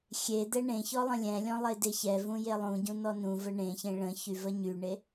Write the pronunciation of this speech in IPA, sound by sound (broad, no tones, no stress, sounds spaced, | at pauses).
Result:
xʲ e d̪ ɛ ɳ ẽ ç ɔ lˠ ə̃ lʲ ɛ̃ lʲ ɔ̃ lˠ e d e ç ɛ v ũ j e lˠ ũ ɟ ũ n ɔ n ũ v ə ɳ ẽ ç ẽ ɭ ə̃ ç y v ə ɲ y ɳ e